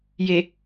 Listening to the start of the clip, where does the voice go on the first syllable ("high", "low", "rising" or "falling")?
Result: low